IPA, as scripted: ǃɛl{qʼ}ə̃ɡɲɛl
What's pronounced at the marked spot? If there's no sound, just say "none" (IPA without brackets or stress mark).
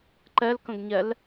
k